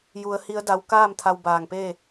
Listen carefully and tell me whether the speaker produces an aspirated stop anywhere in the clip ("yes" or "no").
yes